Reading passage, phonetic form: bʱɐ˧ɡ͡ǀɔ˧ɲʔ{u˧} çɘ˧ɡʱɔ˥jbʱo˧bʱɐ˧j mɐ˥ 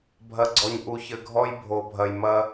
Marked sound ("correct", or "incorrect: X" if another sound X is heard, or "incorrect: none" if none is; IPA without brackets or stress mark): correct